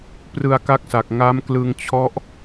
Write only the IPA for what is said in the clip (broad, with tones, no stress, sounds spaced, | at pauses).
p r ɯ˧ a̯ k a˦˥ k̚ s a˨˩ k̚ ŋ a˦˥ m k l ɯ˧ ŋ t͡ɕʰ ɔ˦˥ ʔ